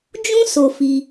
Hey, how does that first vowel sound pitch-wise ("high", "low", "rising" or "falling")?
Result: high